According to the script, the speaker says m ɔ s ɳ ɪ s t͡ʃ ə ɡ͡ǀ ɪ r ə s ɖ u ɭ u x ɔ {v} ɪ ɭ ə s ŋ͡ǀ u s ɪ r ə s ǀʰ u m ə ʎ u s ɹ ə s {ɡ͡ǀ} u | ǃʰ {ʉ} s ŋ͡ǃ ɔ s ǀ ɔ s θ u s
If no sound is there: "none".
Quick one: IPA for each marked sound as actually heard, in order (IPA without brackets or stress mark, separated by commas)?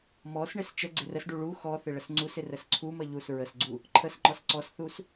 θ, ɡ͡ǀ, ə